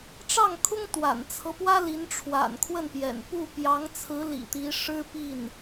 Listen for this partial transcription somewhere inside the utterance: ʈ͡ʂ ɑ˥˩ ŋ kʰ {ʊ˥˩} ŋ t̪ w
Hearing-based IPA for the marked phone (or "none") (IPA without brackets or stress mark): ʊ˥